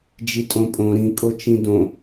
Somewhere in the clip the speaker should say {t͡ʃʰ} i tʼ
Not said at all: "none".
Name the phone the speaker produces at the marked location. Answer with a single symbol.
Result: d͡ʒ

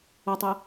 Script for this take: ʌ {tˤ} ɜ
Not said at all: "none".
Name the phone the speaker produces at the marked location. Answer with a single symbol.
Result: tˤ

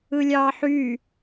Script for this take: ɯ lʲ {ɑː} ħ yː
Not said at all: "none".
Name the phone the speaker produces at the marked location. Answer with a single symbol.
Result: ɑː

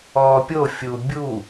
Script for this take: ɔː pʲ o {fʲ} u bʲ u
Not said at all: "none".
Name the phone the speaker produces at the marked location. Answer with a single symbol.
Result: fʲ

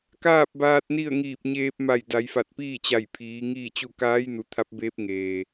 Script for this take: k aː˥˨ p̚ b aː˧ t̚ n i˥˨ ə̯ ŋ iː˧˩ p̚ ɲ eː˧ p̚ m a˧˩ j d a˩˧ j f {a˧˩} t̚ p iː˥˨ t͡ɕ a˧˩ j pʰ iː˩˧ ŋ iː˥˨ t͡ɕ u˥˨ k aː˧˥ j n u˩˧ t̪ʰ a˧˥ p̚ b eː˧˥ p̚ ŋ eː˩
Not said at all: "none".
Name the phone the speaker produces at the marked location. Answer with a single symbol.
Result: a˧˩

